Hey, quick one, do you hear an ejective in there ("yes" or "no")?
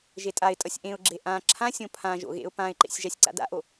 yes